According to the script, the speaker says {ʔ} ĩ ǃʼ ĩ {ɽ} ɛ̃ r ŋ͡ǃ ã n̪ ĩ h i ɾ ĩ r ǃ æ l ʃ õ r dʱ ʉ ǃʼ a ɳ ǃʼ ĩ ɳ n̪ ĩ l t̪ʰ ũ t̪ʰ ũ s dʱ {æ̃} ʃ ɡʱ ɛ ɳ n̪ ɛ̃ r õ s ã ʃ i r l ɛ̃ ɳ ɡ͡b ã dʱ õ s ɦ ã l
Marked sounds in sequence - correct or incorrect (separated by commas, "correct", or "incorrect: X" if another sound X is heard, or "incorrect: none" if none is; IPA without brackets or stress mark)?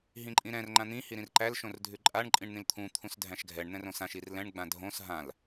incorrect: ɦ, incorrect: ɾ, correct